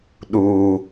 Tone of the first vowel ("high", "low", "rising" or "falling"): high